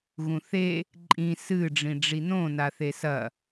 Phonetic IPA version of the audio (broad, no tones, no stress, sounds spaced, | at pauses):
ɣ ũ θ e | ǃʼ ĩ s ɨ ɖ͡ʐ ĩ ɖ͡ʐ i n õ n a θ e s ɐ